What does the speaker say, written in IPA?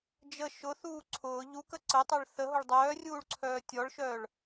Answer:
d͡ʒə ʃʊθuː ǀʰʊː ʎukə ǀətˤœɭ θəɦʊɭ dˤœːrʲuːɭǀʰœː tʲɔɭʃœːɭ

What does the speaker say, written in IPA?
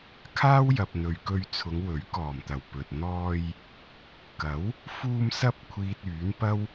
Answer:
kʰaː˥wjɐ˨p̚n̪ɵ˨ɥkɵ˧ɥ t͡sʰʊ˨˧ŋwɵ˨˥ɥkɔː˨˩mt̪ɐ˨˩w pɵ˨t̚ n̪ɔː˧j | kɐ˨˥w | fuː˧msɐ˧p̚kʷʰiː˨t̚ yː˨˥npɐ˥w

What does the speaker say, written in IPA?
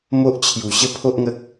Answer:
mo˦ʔt͡ɕʰju˨˩ɕə˥˧ pʰo˦ʔŋə˦k̚

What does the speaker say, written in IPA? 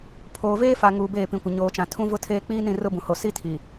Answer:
pʰoː˨veː˦fa˨ ŋuː˨beː˦˨pĩ˨kʷɪ˨ ɲoː˨t͡ʃã˨ tʰũ˦vʊ˦tʰeː˦ k͡piː˦nĩ˦˨ rʊ˦bũ˨ho˨ si˦tʰi˨

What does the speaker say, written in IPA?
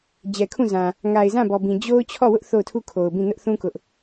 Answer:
d͡ʑɛ˨kʰũ˦˨ zã˨ | ŋa˨ɪ̯zã˦˨bɔ˨bĩ˨ d͡ʑo˦ʊ̯ t͡ɕʰɔ˦˨wʊ˦ʔ θo˦˨ʊ̯tʰu˦˨kʰo˨ʊ̯bĩ˦˨ nʊ˦ʔθũ˦ kʊ˦ʔ

